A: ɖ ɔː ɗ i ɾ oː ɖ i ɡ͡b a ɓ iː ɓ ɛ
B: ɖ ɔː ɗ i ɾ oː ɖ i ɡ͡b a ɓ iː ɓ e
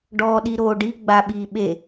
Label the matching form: B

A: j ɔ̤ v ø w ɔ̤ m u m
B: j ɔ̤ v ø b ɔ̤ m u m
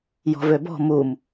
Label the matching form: B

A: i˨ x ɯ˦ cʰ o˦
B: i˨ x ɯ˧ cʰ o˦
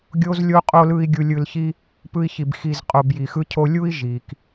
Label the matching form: A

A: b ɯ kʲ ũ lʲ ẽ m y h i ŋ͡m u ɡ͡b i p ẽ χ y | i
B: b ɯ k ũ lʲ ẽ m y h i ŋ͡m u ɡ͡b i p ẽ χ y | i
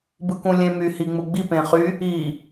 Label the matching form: B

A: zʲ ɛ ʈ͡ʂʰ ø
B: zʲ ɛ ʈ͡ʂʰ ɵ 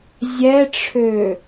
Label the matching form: A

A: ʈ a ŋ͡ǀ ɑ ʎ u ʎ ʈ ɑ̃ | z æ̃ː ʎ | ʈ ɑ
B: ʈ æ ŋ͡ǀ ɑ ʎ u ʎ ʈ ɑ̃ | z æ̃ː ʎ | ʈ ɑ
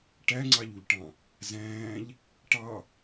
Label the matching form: B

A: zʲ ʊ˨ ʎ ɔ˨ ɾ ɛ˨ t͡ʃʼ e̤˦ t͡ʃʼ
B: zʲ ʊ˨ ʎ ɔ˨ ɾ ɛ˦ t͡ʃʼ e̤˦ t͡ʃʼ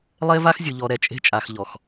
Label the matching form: A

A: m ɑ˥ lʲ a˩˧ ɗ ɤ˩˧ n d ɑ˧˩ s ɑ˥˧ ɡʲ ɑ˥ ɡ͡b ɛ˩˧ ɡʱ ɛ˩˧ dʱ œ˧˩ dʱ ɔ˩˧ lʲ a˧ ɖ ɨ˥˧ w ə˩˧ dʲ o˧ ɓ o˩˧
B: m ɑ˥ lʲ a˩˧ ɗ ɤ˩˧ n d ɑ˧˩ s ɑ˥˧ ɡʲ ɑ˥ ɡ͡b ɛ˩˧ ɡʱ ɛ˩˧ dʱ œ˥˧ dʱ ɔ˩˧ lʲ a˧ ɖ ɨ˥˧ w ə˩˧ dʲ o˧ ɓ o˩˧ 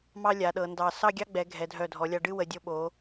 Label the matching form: A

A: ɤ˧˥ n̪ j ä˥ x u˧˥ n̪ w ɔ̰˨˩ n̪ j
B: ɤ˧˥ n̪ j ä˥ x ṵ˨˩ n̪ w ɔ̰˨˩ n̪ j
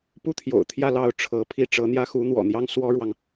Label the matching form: A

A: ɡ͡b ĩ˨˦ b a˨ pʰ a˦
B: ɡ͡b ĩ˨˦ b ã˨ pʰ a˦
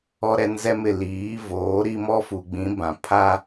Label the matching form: B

